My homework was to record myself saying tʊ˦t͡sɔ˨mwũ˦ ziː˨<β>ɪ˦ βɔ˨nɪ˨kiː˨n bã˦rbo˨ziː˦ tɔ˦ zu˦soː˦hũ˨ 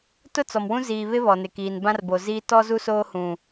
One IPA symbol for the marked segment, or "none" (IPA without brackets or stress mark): β